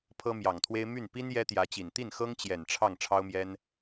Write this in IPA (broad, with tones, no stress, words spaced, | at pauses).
pʰɤ˥mjɑ˨˩ŋt̪ʰwe˥ɪ̯ my˥˩n pi˥n jɛ˥t̪jä˧˥t͡ɕi˨˩n t̪i˥˩nxɤ˥ŋt͡ɕjɛ˨˩n ʈ͡ʂʰɑ˥˩ŋ ʈ͡ʂʰɑ˥ʊ̯mjɛ˥n